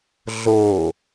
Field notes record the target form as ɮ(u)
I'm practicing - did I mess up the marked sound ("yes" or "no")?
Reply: yes